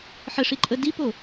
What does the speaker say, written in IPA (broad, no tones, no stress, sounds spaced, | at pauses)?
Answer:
ħ ə ʂ i ǃʼ ə d i p o